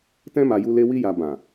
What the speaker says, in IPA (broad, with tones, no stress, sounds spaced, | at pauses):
t ɛ̃˦ m a˧ j u˦ l e˦ w i˦ j a˧ b ã˨